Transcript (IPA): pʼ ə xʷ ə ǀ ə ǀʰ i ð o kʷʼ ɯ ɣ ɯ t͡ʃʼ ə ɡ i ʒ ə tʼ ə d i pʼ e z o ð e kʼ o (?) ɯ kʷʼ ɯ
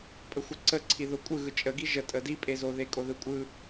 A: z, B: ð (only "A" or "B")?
B